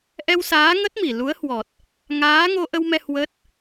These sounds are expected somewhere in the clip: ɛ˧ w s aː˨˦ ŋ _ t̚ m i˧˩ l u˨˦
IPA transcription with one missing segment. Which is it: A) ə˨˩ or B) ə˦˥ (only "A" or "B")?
B